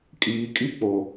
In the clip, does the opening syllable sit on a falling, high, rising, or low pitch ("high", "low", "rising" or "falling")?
low